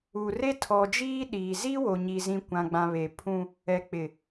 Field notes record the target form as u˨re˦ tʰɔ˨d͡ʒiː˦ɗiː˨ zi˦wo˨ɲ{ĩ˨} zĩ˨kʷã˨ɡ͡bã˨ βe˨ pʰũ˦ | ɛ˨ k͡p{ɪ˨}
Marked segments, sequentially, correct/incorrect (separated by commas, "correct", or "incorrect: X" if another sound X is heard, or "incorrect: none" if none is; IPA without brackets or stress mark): incorrect: i˨, correct